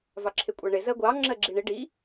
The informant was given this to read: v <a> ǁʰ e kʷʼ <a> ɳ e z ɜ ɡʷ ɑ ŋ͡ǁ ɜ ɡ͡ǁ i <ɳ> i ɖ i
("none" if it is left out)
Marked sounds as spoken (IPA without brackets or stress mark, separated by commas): ɑ, a, ɳ